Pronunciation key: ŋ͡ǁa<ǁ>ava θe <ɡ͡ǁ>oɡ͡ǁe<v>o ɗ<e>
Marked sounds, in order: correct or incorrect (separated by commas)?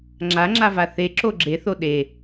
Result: incorrect, incorrect, incorrect, correct